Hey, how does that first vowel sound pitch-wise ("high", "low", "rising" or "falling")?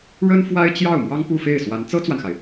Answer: high